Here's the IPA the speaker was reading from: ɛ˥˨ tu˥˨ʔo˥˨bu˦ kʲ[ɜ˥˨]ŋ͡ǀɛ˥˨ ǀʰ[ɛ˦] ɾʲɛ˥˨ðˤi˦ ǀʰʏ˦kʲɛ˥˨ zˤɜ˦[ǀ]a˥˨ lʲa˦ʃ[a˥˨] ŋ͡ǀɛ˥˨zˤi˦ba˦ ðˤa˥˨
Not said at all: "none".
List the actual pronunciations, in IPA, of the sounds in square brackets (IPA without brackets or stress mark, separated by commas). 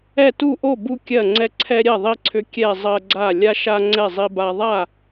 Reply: ɜ˥˨, ɛ˦, ɡ͡ǀ, a˦